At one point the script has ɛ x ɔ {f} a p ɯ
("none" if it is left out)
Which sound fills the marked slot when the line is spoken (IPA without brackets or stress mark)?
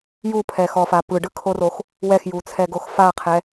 f